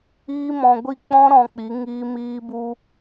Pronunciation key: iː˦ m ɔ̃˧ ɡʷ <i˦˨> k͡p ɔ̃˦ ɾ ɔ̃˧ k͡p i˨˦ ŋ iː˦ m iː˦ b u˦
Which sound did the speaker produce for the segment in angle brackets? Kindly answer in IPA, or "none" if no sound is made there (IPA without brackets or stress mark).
i˦˨